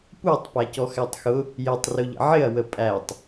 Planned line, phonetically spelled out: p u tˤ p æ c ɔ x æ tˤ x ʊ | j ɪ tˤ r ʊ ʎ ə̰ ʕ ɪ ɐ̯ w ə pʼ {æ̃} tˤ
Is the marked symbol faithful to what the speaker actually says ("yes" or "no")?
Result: no